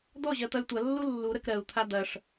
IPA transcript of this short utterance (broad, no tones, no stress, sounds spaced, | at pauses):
d̪ ɔ ʑ ɜ t̪ ɐ y̯ tʷ ɐ lː u lː u ɾ ə k ɾ ɜ u̯ t̪ʰ a d̪ ɐ ʂ